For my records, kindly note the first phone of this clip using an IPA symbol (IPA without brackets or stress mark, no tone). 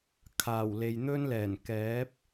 kʰ